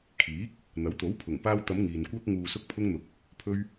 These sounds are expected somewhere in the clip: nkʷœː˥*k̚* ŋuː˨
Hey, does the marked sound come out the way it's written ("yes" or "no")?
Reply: yes